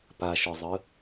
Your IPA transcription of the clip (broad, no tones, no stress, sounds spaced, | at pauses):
p a ʃ ɯ zˤ ɯ